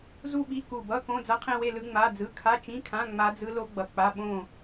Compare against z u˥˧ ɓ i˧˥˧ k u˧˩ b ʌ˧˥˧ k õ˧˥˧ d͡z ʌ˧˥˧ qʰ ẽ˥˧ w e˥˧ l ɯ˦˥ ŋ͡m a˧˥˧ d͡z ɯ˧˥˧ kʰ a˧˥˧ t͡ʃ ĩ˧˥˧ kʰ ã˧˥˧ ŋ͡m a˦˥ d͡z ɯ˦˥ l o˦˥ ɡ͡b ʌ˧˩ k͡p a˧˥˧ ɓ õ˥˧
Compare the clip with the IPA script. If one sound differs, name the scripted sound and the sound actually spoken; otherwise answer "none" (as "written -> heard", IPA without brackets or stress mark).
none